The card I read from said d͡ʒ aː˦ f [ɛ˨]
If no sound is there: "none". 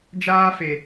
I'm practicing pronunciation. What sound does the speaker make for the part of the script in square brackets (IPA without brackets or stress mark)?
e˨